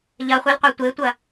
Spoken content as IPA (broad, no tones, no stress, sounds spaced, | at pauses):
ʎ ɐ χʷ i l qʷ ɛ tʷ e tʷ ɐ